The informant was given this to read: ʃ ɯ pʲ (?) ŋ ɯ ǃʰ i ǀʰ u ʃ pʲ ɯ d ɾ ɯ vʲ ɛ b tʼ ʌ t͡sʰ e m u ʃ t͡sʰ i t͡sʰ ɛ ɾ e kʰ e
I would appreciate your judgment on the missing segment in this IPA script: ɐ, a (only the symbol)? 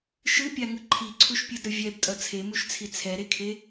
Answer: a